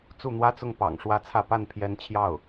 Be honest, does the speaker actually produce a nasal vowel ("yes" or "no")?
no